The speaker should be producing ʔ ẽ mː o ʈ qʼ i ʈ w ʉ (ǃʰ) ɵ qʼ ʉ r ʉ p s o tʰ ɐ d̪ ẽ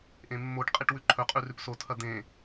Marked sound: correct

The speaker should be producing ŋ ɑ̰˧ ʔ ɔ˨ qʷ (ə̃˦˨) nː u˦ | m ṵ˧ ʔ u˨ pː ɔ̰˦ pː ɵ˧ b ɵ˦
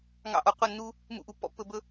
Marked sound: incorrect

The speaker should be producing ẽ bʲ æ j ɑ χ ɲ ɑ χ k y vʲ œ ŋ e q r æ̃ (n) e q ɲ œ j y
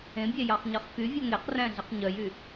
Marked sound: incorrect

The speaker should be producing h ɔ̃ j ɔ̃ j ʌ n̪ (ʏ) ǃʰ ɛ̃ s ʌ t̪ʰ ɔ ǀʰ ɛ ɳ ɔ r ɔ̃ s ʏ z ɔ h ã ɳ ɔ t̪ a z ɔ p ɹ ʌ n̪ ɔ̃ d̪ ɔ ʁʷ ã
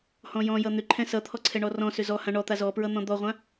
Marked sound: correct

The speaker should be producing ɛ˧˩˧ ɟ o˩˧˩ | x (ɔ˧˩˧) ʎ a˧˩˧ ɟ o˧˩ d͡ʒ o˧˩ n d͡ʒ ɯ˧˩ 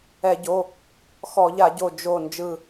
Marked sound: correct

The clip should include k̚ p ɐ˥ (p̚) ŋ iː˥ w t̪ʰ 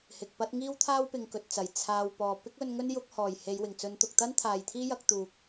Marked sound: incorrect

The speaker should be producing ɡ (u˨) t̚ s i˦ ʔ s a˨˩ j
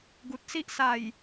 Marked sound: correct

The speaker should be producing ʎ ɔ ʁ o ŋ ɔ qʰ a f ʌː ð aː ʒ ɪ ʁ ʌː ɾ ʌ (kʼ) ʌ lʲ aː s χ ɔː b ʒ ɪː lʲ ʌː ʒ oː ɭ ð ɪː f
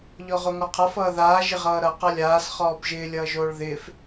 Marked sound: incorrect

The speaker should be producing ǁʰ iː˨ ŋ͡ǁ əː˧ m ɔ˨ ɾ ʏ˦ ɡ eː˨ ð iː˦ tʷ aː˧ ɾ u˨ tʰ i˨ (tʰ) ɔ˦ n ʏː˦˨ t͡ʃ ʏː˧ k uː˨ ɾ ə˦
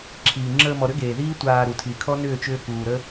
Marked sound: incorrect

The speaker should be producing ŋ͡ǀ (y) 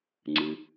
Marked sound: incorrect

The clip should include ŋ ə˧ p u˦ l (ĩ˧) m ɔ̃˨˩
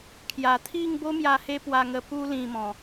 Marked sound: correct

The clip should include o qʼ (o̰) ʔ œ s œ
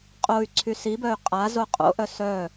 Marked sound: correct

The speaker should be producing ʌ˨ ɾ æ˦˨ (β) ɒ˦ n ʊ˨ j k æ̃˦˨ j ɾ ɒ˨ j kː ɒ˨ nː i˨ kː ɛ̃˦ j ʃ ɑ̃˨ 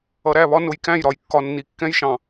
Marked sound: correct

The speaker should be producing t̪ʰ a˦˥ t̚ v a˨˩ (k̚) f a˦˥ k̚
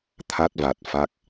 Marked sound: incorrect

